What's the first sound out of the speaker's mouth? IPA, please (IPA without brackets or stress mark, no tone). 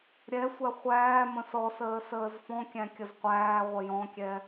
ɾʲ